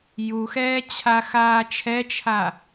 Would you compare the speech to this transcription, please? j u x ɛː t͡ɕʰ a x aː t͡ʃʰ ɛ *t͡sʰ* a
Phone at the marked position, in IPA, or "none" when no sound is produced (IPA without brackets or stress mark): t͡ʃʰ